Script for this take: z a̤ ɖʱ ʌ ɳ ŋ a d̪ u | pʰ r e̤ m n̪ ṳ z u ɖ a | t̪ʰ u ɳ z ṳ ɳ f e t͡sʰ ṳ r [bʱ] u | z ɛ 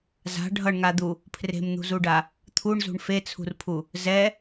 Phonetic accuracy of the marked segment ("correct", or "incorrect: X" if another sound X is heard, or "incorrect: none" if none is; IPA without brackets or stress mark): incorrect: pʰ